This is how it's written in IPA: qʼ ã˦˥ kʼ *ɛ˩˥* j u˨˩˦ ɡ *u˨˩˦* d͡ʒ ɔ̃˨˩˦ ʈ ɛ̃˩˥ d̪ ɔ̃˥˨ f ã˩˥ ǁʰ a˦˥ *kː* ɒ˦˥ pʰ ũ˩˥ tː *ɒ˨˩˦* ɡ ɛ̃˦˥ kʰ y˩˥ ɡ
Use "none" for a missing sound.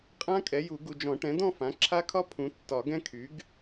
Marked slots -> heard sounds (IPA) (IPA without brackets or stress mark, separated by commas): ɛ˩˥, u˨, kʰ, ɒ˨˩˦